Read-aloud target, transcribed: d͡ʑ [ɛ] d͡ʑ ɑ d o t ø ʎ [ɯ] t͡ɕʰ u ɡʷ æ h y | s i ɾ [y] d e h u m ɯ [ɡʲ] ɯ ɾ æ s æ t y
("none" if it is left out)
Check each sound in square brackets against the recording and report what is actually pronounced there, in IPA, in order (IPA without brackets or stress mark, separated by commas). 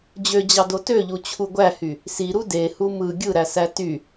ø, u, u, ɡʲ